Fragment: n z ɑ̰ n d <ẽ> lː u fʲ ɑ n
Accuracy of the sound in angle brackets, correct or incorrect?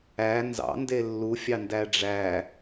incorrect